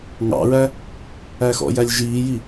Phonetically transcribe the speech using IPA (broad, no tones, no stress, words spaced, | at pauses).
ŋɑ̰ɹæ | æxɔ̰jælʲ ʒiːji